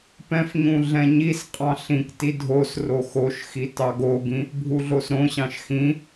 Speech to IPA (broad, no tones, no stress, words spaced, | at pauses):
pɛ̃fɲũ ɮɛ̃ɲisqʼɑ̃ ɬĩkti dʱosro xoʃxi tɑɡoɡĩ | bʱuɮosɾõɕɑ̃ʃ xĩ